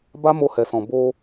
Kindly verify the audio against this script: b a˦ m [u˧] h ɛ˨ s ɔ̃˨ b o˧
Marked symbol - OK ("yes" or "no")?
no